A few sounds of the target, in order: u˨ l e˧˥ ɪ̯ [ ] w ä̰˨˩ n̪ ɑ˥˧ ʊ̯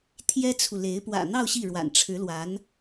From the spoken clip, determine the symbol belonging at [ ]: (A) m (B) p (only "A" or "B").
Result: B